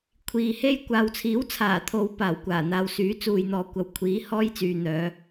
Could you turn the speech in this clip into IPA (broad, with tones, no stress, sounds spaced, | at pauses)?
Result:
kʷʰ iː˨ h e˥ j kʷ aː˨ w t͡sʰ iː˨˥ w t͡sʰ aː˨˩ t̪ʰ o˨˧ w p aː˨˩ w kʷ aː˨˩ n̪ aː˨ w s yː˨˥ t͡s uː˨ j n̪ ɔː˨ kʷ ɐ˨ w kʷʰ iː˨˥ h ɔː˥ j t͡s yː˨ n̪ œː˨˧